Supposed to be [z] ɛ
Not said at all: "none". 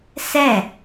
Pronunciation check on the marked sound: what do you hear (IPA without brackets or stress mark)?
s